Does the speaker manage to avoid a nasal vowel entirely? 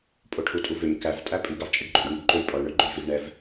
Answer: yes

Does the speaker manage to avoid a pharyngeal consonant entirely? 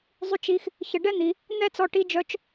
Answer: yes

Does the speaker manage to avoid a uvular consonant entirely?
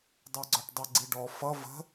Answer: yes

